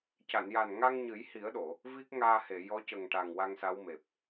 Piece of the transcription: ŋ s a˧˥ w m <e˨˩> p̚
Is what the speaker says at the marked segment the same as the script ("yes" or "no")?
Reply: yes